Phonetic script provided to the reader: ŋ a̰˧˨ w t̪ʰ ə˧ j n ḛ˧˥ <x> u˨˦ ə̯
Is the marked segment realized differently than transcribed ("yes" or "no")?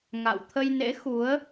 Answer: no